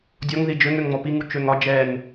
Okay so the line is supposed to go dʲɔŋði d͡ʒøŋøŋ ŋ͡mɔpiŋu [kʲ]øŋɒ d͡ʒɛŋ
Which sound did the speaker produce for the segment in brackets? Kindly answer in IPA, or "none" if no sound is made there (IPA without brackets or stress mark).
t͡ʃ